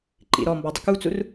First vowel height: high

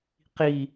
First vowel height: high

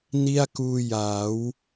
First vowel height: high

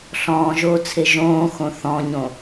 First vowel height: mid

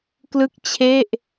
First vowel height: high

